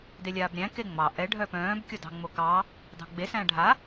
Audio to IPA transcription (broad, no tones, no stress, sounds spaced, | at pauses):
d e lʲ aː b ɾʲ æ̃ k e ŋ͡m ɑ ʔ ɛ ɖʱ œ p œ̃ː b kʲ o d ɑ̤ ŋ͡m o k ɑ | d ɑ̤ ɡ͡b e s æ̃ ɖʱ a